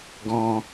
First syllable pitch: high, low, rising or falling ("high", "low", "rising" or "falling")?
high